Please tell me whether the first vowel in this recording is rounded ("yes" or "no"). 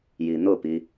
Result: no